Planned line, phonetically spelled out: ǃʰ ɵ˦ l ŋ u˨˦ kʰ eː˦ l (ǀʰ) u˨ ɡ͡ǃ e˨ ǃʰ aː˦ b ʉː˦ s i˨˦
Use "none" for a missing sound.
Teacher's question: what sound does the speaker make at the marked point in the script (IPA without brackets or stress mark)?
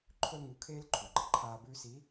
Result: ǃʰ